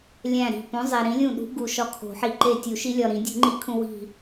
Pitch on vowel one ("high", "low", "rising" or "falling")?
falling